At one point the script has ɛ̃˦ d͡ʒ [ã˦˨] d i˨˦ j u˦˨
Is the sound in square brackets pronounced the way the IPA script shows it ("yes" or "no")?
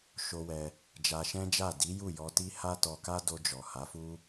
no